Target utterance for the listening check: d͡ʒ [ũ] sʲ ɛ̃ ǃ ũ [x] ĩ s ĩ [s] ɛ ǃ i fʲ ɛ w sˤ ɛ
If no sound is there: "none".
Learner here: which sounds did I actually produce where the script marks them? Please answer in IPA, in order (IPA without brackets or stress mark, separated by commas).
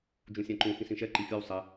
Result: ũ, x, ʃ